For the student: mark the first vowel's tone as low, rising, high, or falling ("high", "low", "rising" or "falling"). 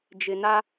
low